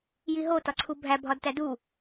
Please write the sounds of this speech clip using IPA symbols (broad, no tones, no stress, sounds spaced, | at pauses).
j i ɦ o t ɒ ǀʰ u bʱ æ bʱ ɒ d t æ d u